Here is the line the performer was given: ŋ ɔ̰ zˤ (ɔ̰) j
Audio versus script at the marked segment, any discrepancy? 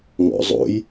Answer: yes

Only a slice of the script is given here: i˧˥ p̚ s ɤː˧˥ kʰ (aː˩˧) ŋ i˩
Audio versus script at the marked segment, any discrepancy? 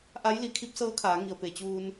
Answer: no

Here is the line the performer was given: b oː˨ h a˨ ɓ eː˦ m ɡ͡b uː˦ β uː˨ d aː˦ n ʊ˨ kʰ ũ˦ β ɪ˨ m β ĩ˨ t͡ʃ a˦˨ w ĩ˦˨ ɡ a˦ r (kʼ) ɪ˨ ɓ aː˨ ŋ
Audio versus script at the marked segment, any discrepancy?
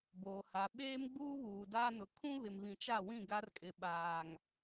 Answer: no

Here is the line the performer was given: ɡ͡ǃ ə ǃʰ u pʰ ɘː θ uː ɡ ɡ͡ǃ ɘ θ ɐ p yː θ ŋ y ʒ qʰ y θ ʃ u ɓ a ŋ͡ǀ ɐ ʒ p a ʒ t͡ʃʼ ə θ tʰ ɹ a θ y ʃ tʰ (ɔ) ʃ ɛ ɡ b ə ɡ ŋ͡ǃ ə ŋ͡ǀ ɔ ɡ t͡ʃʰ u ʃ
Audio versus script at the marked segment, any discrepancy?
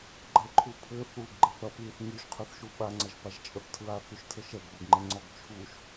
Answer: yes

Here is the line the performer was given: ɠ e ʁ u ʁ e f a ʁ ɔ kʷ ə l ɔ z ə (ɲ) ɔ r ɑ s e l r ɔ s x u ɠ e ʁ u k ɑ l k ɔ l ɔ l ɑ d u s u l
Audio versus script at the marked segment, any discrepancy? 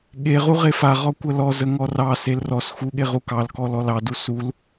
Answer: yes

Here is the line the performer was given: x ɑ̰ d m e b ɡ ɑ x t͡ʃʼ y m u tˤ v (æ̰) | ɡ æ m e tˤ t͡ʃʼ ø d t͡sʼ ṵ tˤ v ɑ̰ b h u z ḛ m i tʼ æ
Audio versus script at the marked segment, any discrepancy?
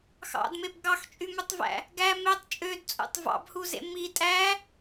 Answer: no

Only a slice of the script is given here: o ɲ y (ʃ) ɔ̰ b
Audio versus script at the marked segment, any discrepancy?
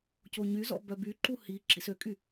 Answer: yes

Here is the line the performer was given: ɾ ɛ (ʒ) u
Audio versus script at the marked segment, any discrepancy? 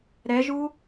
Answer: no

